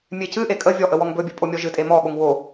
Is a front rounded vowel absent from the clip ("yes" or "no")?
yes